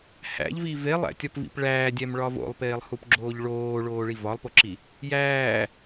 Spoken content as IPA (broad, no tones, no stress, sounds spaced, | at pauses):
h æ̰ ʎ v i v e lˠ æ̰ tʲ ɒ p v ḭ p ɭ æː dʲ æ m ɭ ɒ v o̰ lˠ p eː lˠ h u p ɡ͡ǁ oː ʎ ɭ oː ɭ oː ɭ i v ɒ lˠ p o ǁ i | j æː